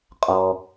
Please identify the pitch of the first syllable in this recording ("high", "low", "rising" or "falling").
low